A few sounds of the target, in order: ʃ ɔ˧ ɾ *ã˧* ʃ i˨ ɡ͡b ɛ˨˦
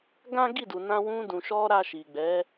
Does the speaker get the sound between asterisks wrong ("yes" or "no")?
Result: yes